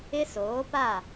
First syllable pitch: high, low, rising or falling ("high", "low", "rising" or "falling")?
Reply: high